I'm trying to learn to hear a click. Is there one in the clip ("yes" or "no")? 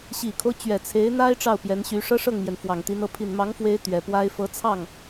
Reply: no